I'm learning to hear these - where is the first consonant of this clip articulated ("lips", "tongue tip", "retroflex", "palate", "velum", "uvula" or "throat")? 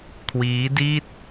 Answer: velum